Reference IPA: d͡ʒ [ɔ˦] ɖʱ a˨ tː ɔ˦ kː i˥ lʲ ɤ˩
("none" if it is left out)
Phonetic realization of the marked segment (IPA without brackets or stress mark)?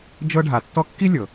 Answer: ɤ˦